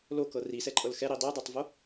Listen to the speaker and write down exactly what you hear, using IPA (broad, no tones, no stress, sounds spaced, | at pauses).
l o k ɤ r i s ɛ ǃʼ ɤ l x ɛ ɾ i dˤ i dˤ o tˤ v o